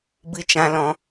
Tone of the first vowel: high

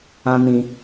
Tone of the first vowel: high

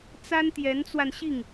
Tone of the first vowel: high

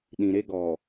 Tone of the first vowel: low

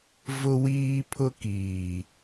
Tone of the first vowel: high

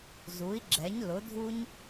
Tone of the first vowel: rising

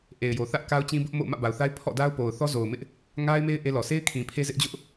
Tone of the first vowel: low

